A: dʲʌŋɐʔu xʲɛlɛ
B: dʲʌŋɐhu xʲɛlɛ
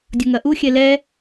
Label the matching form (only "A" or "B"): A